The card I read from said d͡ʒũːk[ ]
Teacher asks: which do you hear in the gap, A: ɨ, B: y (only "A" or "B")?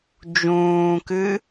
A